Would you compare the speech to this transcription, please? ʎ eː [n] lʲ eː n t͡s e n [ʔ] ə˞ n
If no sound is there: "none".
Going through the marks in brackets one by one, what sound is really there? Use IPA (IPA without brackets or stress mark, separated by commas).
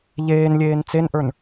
n, ʔ